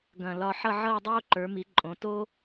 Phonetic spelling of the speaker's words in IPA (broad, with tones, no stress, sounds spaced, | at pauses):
ɡ ɐ̃˧˩ l ɒ˧ ħ ʌ˥˧ ʕ ʌː˥˧ dˤ oː˥ ǃ ə˞˩˧ m i˩˧ ǃʼ õ˩˧ t oː˥